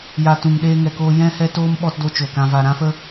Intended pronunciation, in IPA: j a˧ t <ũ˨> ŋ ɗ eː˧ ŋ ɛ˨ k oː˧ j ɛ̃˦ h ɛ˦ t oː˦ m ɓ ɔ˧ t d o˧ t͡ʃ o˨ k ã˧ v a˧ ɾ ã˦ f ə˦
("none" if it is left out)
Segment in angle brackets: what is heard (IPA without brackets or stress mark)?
ũ˨